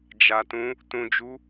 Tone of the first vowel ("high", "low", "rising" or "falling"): low